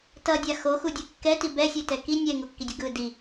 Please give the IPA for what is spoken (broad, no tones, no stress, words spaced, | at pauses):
tʌdʲa xoxudʲɯ kːɛti bɛsʲɛtɛ ki nʲɛŋokːidʲʌ ɡɯ di